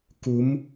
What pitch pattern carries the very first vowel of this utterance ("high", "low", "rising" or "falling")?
rising